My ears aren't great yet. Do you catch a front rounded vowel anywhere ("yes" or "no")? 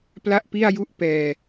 no